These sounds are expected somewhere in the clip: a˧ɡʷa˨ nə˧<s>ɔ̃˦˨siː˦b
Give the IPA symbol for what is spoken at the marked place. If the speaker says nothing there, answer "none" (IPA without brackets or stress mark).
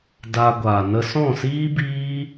s